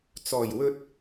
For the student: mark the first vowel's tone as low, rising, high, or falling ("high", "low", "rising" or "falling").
low